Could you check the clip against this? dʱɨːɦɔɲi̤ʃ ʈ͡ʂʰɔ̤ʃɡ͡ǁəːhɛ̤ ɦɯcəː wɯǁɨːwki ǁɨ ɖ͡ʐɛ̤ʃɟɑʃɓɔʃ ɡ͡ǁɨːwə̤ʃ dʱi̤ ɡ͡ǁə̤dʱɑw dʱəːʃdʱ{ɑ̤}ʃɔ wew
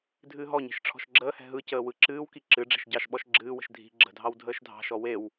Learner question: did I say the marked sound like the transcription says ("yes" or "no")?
yes